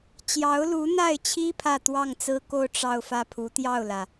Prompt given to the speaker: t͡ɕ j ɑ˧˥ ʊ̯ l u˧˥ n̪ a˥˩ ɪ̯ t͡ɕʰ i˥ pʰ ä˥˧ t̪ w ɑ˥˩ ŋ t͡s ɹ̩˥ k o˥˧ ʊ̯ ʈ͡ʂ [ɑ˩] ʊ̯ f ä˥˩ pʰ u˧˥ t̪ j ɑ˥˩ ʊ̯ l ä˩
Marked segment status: incorrect: ɑ˥˧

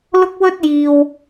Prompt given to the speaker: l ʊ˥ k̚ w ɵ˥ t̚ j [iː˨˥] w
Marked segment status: incorrect: iː˨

